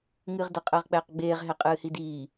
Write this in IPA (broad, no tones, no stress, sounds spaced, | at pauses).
ŋ ɨː ʁ d ə qʼ əː ʁ k͡p ɛː q ɡ͡b eː ʁ ɦ ɛ qʼ ɨː h i d iː